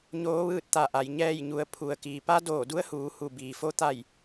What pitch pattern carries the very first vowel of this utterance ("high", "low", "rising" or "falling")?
rising